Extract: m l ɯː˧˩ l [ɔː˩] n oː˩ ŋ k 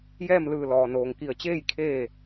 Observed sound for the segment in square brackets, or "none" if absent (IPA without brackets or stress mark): ɔː˩